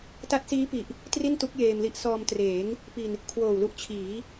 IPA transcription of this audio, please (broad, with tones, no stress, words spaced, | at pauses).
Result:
ta˦˥t̚siː˦˥pi˨˩ʔ | tri˥˩ntu˦˥k̚ jeː˧mli˦˥ʔ sɔː˧m treː˩˦ŋ | pi˨˩n | kʰwoː˨˩wlu˦˥ʔ t͡ɕʰiː˩˦